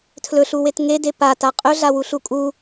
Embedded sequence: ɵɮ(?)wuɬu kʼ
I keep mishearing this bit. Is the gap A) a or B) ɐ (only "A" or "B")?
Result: A